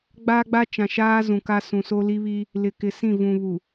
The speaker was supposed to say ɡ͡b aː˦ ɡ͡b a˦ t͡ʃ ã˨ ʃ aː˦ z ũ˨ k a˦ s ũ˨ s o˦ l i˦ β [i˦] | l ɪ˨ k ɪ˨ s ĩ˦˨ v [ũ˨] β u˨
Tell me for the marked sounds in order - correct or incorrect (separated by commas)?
correct, correct